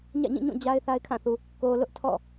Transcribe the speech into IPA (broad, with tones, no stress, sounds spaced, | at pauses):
ɲ ä̰˦˨ ɲ ĩ˦˨ ɲ ũ˦˨ d͡ʑ a˦ ɪ̯ θ a˦ ɪ̯ kʰ ã˦˨ θ u˨ | k o˨ l ʊ˦ ʔ tʰ ɔ̰˦˨